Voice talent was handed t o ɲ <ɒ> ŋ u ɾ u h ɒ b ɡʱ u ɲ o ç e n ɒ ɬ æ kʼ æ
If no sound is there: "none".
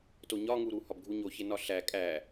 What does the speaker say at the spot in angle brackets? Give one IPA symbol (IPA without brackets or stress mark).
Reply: ɒ